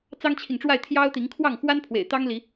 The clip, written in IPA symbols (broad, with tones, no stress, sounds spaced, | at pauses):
t͡s ɑ˦ ŋ t͡ɕʰ i˨ ŋ ʈ͡ʂ w a˥˨ ɪ̯ t̪ʰ j ɑ˦ ʊ̯ t̪ i˨˦ ŋ kʰ w ɑ˥˨ ŋ x w a˦ n pʰ w ḛ˨˩ ɪ̯ t̪ ɑ˦ ŋ l i˨˦